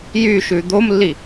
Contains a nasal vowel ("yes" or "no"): no